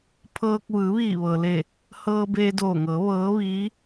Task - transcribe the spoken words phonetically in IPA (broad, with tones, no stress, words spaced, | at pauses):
pʰɤː˧k̚ ʋɯː˩˧ʋiː˧˩ʋɤː˩le˧˩ | hɤː˧beː˧doː˧˩ŋɤː˩˧ ʋɤː˧˥ʋiː˧˥